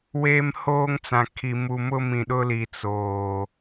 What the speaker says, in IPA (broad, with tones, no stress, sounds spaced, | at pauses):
w eː˦ m h oː˦ ŋ t͡s ã˨ kʰ i˨ m u˨ m ʊ˦ m ĩ˨ ɗ ʊ˦ l i˨ t͡s oː˨